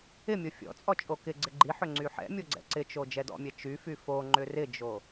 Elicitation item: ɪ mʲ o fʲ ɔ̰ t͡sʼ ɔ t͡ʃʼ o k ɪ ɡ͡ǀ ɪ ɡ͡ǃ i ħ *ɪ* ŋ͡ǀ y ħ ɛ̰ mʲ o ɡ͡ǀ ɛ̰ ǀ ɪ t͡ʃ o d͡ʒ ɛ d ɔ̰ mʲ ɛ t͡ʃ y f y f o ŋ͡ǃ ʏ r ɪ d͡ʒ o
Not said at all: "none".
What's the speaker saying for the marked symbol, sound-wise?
ʏ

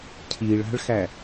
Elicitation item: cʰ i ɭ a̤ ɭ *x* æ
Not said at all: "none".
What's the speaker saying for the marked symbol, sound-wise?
x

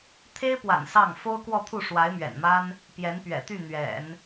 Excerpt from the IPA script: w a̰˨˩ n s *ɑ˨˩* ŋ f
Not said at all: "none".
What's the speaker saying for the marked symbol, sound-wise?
ɑ˥˩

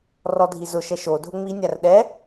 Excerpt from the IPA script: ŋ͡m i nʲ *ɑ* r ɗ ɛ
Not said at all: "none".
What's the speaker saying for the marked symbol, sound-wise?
a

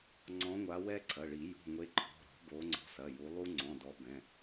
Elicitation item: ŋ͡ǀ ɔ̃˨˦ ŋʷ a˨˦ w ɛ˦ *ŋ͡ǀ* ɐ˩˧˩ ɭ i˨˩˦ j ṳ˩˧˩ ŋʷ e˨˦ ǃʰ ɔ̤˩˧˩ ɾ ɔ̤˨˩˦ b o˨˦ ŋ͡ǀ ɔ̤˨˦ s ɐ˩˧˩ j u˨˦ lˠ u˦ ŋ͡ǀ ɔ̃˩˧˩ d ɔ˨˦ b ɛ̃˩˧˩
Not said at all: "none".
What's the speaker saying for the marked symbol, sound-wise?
ǀʰ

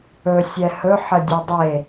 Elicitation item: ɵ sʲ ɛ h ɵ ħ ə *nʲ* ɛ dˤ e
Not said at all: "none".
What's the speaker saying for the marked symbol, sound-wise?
dʲ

